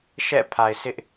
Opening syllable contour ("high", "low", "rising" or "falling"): falling